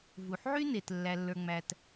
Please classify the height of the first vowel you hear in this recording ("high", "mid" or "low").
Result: high